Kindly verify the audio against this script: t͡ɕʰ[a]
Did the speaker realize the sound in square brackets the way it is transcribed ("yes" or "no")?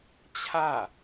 yes